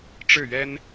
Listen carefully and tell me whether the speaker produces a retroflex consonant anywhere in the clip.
yes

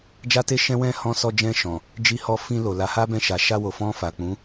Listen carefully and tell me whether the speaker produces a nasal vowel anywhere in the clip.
yes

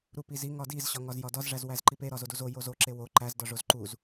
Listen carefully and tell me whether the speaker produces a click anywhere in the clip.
yes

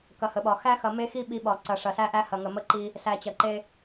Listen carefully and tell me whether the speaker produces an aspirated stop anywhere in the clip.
no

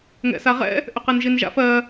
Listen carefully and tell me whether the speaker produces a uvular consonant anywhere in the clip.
yes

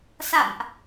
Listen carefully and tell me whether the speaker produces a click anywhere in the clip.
no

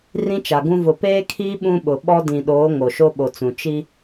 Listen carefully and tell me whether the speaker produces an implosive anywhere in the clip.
yes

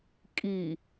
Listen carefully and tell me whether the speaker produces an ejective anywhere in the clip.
yes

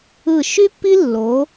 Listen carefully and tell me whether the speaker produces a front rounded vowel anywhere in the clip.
yes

